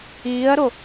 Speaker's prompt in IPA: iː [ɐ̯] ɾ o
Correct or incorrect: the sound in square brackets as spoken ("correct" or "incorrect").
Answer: correct